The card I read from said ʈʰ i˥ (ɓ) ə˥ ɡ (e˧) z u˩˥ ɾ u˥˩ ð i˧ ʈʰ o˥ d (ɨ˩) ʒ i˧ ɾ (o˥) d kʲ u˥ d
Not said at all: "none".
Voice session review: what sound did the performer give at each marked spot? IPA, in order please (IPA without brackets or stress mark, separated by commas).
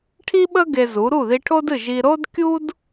ɓ, e˧, ɨ˥˩, o˥